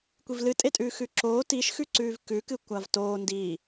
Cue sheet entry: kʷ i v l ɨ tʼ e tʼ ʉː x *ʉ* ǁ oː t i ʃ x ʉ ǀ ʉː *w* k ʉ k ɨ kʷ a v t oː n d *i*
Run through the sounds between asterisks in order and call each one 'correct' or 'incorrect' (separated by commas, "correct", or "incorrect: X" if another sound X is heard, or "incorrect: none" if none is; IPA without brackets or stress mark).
correct, incorrect: v, incorrect: iː